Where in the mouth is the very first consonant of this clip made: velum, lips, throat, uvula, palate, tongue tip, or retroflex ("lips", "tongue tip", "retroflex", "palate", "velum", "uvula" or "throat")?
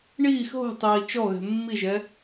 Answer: retroflex